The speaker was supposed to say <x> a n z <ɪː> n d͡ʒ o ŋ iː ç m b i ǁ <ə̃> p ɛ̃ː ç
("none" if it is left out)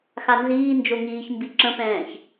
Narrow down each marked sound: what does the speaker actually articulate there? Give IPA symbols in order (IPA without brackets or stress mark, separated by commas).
x, iː, ə̃